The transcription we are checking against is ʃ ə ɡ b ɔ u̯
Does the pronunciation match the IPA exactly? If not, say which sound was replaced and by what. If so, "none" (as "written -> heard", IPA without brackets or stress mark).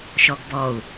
ə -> ɔ